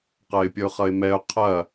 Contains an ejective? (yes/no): no